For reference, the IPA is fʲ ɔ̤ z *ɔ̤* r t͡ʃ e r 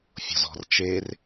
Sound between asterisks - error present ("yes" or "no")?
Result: no